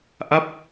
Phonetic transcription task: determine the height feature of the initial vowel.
low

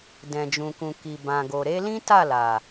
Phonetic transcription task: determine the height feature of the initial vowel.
mid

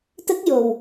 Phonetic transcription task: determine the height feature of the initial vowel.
mid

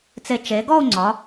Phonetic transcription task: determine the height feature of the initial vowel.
mid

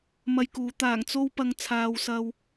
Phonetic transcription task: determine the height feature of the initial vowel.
low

